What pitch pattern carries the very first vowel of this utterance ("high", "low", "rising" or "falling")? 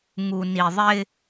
low